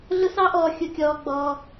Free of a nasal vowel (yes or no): yes